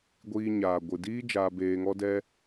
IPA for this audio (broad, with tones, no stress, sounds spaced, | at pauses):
ɡʷ iː˧ ɲ aː˨ ɡʷ ɨ˨ d iː˦ d͡ʒ aː˧ b eː˧ ŋ ɔ˦ d ɛ˦